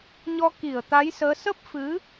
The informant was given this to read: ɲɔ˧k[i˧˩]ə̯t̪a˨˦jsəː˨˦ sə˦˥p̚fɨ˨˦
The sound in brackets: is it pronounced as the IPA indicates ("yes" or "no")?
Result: yes